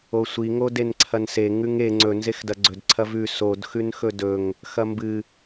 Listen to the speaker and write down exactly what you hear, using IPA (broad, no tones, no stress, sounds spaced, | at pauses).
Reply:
o sʷ i ŋ o d e n ǀʰ ɐ n s e ŋ ʉ ŋ e ŋ͡ǀ ɵ n z e x d ɐ ɡ͡ǀ ɵ d ǀʰ ɐ v ʉ s o d x ʉ n x ɵ d ɵ ŋ | x ɐ m b ɨ